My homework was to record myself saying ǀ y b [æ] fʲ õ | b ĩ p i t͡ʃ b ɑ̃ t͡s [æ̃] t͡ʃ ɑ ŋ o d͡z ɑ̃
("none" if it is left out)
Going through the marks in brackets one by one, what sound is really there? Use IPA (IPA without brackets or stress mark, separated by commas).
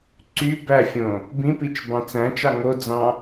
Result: æ, æ̃